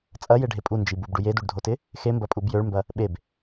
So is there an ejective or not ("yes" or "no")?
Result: yes